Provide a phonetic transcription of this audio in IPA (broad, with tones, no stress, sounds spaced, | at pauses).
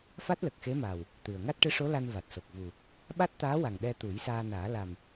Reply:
f a˦˥ t̚ l ə˨˩ k̚ x e˧˥ m aː˨˩ w | t̪ ɨ˨˩ ə̯ ŋ a˦˥ t̚ ʈ ɨ˧˥ ʂ o˧˥ l a˧ n v a˨˩ t̚ s o˨˩ k̚ v u˨˩ | ɓ a˦˥ t̚ t̪ aː˧˥ w a˨˩ ŋ ɗ ɛ˧ t̪ u˨˩˦ j s aː˧ n aː˨˩˦ l a˨˩ m